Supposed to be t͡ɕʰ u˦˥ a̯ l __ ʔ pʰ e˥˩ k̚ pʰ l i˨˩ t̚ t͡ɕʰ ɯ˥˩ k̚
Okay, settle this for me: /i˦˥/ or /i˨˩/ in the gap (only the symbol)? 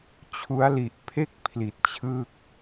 i˨˩